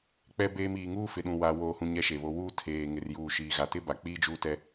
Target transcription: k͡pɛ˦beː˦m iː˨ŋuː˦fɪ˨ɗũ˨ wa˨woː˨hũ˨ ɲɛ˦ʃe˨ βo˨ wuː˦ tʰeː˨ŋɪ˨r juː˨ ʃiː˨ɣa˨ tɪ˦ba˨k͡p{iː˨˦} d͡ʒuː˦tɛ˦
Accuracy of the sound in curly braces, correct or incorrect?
incorrect